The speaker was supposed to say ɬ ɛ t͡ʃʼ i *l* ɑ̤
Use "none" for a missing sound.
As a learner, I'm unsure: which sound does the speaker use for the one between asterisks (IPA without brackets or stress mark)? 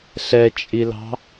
l